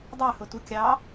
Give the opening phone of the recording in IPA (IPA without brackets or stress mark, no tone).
dˤ